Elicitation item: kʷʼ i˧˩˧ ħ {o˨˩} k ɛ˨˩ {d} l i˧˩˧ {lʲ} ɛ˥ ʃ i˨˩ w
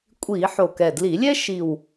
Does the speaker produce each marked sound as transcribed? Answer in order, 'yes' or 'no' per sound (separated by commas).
yes, yes, yes